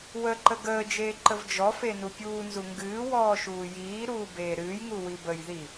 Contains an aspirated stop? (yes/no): no